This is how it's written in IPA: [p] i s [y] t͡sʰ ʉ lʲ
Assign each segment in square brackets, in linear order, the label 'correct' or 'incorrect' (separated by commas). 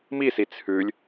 incorrect, incorrect